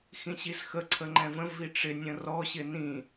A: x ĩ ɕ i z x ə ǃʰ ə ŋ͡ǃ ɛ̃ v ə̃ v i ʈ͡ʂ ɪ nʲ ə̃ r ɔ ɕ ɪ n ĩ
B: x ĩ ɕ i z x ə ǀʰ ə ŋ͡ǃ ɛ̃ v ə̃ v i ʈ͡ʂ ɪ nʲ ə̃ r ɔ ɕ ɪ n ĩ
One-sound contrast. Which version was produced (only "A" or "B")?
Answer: B